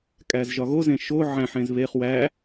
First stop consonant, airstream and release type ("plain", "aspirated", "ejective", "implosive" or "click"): ejective